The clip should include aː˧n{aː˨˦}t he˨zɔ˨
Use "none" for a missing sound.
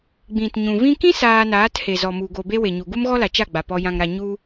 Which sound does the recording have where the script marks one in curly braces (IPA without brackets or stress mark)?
aː˨˦